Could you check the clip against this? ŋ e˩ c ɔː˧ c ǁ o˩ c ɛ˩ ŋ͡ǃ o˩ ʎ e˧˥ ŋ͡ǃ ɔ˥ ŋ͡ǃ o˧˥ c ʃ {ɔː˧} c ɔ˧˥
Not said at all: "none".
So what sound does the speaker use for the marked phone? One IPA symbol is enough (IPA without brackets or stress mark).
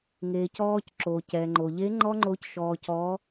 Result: ɔː˧